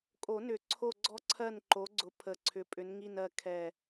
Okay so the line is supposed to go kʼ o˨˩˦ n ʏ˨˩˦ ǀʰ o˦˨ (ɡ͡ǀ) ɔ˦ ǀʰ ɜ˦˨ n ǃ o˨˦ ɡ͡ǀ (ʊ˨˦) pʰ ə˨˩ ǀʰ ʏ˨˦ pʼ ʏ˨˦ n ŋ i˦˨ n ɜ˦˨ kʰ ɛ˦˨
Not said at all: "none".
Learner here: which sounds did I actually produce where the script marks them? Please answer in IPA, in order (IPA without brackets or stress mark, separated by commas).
ɡ͡ǀ, ʊ˨˦